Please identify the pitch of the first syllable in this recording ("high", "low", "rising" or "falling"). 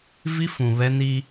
high